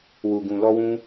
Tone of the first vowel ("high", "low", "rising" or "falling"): low